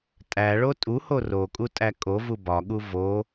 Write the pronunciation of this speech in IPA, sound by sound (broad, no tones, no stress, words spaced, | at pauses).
tʼæɭo tʼuho rokʼu tʼækʼovu bɒɠu vo